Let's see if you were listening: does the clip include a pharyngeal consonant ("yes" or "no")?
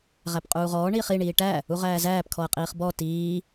no